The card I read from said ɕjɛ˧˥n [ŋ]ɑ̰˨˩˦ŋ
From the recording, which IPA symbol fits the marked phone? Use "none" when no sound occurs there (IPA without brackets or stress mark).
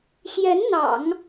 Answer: n̪